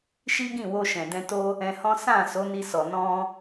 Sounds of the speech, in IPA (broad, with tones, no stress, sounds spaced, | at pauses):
ʃ i˦ ɡ ĩ˦˨ w o˧ ʃ ɛ̃˨ d ɛ̃˧ t o˦ | ɛ̃˧ h ɔ̃˦ s ã˦˨ s o˨˦ n i˧ s ɔ˨ n ɔ̃˧